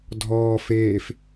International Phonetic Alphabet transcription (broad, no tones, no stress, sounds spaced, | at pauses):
dʱ ɔː f eː f